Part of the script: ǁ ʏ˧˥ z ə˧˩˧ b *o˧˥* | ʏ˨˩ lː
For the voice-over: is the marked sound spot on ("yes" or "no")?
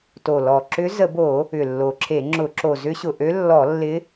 no